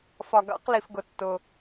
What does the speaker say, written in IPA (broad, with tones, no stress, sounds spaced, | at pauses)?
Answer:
f ɒ˩ ɡ ɑ̰˧˩˧ q l i˩ f ɡ ʊ˩ tː ʊ˩